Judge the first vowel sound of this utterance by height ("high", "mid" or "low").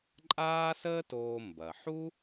low